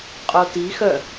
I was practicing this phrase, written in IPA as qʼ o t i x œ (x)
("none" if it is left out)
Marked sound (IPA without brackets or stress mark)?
none